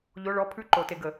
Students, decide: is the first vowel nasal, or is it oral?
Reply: oral